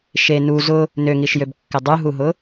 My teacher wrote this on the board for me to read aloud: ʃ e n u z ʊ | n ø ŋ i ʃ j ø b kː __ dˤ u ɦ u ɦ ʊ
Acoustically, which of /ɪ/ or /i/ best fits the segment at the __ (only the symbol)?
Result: ɪ